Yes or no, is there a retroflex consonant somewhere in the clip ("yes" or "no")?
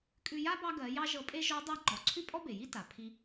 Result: no